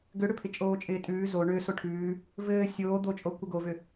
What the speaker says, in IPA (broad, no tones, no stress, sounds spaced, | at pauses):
ɡ ʏ ɽ ʏ pʰ ɪ t͡ʃʼ oː t͡ʃʼ ɪː tʼ ʉː z o ɳ ʏ s o ʈʰ ʉː | v ɘː sʲ oː d̪ o t͡ʃʼ o kʷ ɘ ɡ o v ʏ